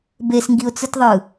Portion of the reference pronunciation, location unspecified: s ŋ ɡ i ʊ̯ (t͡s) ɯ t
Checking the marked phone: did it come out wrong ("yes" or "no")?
no